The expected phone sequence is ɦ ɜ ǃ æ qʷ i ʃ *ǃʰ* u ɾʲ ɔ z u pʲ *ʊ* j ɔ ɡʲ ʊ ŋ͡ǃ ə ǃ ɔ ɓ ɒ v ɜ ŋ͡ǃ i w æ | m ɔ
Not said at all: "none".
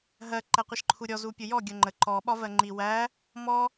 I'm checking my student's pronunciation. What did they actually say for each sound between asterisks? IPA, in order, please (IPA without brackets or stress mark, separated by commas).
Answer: ǃʰ, ʊ